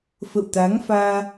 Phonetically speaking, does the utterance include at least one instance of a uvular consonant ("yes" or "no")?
no